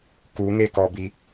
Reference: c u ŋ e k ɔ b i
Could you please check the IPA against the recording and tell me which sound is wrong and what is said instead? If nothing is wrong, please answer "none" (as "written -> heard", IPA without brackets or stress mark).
c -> k